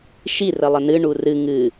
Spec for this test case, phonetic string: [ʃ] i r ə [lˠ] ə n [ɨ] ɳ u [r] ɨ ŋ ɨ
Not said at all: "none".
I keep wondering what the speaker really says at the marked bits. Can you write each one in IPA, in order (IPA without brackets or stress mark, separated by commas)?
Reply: ʃ, lˠ, ɨ, r